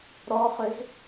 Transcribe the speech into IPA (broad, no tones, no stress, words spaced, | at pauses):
ɾɔχʏz